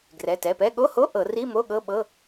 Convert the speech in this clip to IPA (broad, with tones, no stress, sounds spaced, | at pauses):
ɡ r ɛ˩˧˩ t ɛ˩˧˩ p ɛ˧˥˧ ɠ o˧˥˧ h o˧˥˧ ʔ ɤ˧˩˧ r i˧˥˧ m o˧˥˧ ɠ ɤ˧˥˧ ɓ ɤ˧˥˧